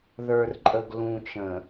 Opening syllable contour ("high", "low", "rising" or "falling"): low